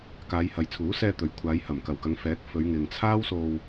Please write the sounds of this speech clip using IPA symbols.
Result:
k aː˨˧ j h ɐ˨ j t͡sʰ uː˨˥ s ɛː˧ t̪ ɵ˨ ɥ kʷʰ aː˨˧ j h ɐ˨˩ m k ɐ˨˩ w k ɐ˨˧ ŋ f ɛː˨˥ k̚ f ɵ˨˧ ɥ ŋ ɪ˨ ŋ t͡sʰ aː˥ w s o˧ w

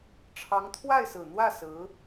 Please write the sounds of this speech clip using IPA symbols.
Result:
ʈ͡ʂʰ ɑ˧˥ ŋ t̪ʰ w a˥˩ ɪ̯ s ɹ̩˨˩ n̪ w ä˥˩ s ɹ̩˧˥

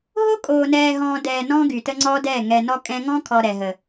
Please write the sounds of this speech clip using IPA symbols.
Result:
ɦ o˦ kʼ oː˨ n ɛː˨ ɦ ɔ̃ː˨ d ɛː˨ n ɔ̃˦ ɡ y˨ t ə˦ ŋ͡ǀ ɔ˦ d ɛ˦˨ ŋ ɛ˨ n ɔ˦ kʼ ɛ̃˦ ŋ ɔ̃˦ kʰ ɔ˨ ɾ ɛ˨ ɦ ə˨

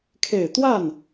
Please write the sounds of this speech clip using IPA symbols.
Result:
kʰ e˨˩ ɪ̯ t̪ w a˥˩ n

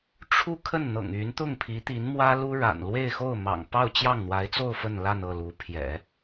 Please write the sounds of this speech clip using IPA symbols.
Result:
ʈ͡ʂʰ u˥˧ kʰ ə˥˩ n n̪ ɤ̰˨˩ ŋ y˧˥ n t̪ ʊ˥˩ ŋ pʰ i˧˥ t̪ i˧˥ n m w ä˥ l u˥ ɻ a̰˨˩ n l w e˥˧ ɪ̯ x o˥˩ ʊ̯ m ɑ̰˨˩ ŋ p ɑ˥˧ ʊ̯ t͡ɕ j ɑ˥˩ ŋ n̪ w a˧˥ ɪ̯ t͡s o˥˧ ʊ̯ f ə˥˧ n l a˥˧ n ɤ˥˩ l u˧˥ pʰ j ɛ̰˨˩˦

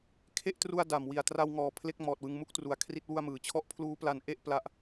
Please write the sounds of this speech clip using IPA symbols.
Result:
kʰ e˥˩ ʔ t r u˧ a̯ d a˨˩ m w i˨˩ a̯ t r a˧ w ŋ ɔː˩˦ pʰ l e˥˩ k̚ m ɔː˨˩ t̚ w ɯ˧ ŋ m u˥˩ k̚ t r u˨˩ a̯ kʰ r i˥˩ t̚ w u˥˩ a̯ m ɯː˩˦ t͡ɕʰ ɔ˦˥ ʔ pʰ l uː˦˥ p l a˧ n ʔ e˥˩ ʔ p l a˦˥ ʔ

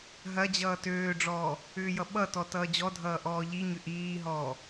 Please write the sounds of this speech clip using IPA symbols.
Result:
ɦ ɐ d͡ʑ ʌː t øː ɖ͡ʐ ɔː | ʏː j ʌ ɓ ʌ t ɔ t ʌː d͡ʑ ɔ dʱ ʌː ʔ ɔː ʎ i ɲ ʏ ʔ iː ɦ ɔː

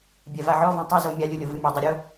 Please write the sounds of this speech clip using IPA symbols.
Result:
bʲ ɛ v a ʕ ɔ v ɔ̃ tˤ ɘ z o mʲ a lʲ u lʲ o v ɨ mʲ e dˤ ɘ ɾʲ o

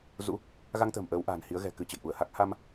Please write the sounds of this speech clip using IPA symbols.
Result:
z ṵ˧˥ | ɣ a˧ ŋ t̪ ə̤ː˨˩ m ʔ əː˨˦ w ʔ a̤ː˨˩ n h i˨˦ ə̯ ɣ ɛ̤˨˩ k ɨ˧ t͡ɕ ə̰˧˨ j ʔ u˧˩ ə̯ h a˦˥ k̚ h a˧ m

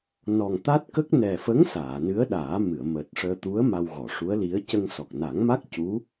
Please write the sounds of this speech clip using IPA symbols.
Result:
n ɔ˨˩ ŋ t̪ a˦˥ t̚ k ə˦˥ k̚ n ɛ˨˩ f ə˧˥ ŋ s aː˨˩˨ n ɨ˧˥ ə̯ ɗ aː˨˩˦ m ɨ˨˩˨ ə̯ m əː˨˩ t̚ ʂ əː˧ t̪ u˧˥ ə̯ m a˧ w ɣ ɔ˨˩˨ ʂ u˧˥ ə̯ l i˧˥ ə̯ c ə˧ ŋ s ɔ˨˩ k̚ n a˨˩˦ ŋ m a˦˥ k̚ c u˧˥

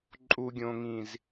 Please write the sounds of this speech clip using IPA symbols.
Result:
ǃʼ u ɡʲ õ ŋ ĩ z

